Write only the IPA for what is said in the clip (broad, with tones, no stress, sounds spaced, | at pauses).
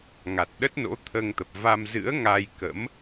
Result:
ŋ a˨˩ t̚ ɗ ə˦˥ t̚ n o̰˧˥ t̪ʰ əː˧ ŋ t̪ ə˨˩ p̚ v a˧ m z ɨ̰˧˥ ə̯ ŋ a˧ j k ə̰˧˥ m